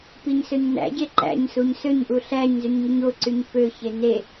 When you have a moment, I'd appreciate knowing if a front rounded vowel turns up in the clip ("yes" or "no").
yes